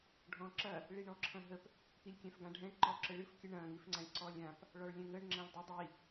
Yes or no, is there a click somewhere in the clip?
yes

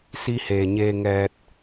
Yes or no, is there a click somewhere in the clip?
no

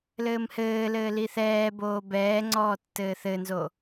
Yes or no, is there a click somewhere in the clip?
yes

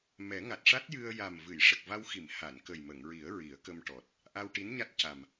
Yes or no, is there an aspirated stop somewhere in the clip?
no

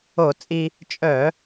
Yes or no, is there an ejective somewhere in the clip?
yes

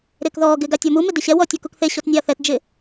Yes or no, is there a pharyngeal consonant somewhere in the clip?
no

